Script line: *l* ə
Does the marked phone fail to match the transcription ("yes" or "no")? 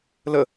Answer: no